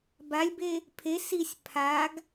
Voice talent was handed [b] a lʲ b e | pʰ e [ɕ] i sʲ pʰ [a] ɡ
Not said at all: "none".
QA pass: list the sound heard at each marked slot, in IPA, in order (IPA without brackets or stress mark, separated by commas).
b, s, a